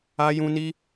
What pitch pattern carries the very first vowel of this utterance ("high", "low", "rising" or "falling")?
high